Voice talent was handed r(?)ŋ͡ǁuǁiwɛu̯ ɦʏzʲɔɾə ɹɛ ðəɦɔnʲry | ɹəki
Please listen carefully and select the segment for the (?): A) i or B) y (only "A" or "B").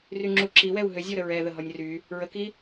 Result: B